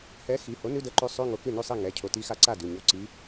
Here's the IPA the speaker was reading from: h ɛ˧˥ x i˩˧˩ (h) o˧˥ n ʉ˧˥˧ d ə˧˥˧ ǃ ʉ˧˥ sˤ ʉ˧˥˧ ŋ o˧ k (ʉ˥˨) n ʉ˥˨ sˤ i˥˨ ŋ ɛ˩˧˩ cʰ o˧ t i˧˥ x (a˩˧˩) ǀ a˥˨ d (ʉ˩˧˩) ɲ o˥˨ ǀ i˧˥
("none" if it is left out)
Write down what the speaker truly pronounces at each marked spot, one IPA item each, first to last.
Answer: h, ʉ˥˨, a˧, ʉ˩˧˩

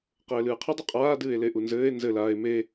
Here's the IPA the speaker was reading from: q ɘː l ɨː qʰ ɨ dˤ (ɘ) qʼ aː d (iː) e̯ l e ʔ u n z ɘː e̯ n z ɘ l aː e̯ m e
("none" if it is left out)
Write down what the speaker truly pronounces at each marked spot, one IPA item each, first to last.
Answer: ɘ, ɨː

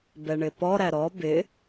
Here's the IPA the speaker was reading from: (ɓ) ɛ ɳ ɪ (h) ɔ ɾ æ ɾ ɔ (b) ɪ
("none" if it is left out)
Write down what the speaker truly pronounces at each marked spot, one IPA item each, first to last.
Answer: b, p, b

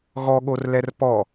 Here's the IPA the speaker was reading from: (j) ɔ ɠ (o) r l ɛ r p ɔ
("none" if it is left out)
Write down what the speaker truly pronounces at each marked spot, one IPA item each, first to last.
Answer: ɣ, o

